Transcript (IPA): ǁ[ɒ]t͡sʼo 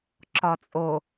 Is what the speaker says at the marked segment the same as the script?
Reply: yes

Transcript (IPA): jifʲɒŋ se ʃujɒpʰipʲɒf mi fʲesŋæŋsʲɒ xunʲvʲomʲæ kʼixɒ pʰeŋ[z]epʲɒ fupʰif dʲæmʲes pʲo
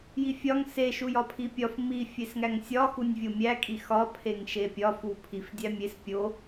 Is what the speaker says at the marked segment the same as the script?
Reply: no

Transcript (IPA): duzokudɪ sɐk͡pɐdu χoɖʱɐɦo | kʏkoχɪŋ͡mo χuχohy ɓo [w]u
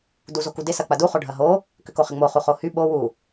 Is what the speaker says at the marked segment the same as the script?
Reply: yes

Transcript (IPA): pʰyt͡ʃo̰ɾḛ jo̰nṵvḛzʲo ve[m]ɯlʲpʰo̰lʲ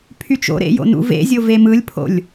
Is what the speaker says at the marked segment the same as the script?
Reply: yes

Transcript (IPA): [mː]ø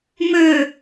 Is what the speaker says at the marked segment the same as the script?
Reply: no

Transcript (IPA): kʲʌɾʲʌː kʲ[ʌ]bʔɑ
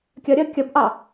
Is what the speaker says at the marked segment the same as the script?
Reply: yes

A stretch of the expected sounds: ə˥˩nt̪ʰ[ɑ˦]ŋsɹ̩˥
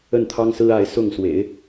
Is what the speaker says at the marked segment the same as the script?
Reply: no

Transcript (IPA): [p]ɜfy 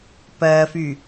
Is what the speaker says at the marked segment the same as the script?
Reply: yes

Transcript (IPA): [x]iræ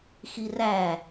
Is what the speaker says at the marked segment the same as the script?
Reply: yes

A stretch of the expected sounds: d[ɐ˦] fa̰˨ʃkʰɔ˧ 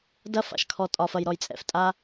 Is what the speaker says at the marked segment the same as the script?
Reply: yes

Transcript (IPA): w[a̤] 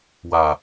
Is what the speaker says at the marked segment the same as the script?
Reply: no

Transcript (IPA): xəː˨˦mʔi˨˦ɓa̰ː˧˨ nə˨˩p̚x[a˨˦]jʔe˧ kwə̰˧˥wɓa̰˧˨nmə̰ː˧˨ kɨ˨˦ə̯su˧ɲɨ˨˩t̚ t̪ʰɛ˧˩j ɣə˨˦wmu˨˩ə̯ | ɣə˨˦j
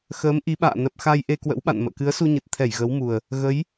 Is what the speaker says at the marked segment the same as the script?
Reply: no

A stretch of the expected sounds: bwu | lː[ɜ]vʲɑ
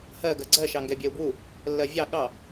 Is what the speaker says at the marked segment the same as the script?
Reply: yes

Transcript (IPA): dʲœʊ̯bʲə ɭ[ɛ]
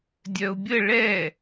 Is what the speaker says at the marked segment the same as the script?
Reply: yes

